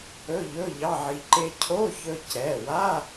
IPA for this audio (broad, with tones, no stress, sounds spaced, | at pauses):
ɵ˧˥˧ ʎ ɵ˧˥˧ ʎ ɑ˧˥˧ ʕ i˧ ǃ e˧ cʰ o˧˥˧ ç ɵ˧ c ɛ˩˧˩ w a˧˥˧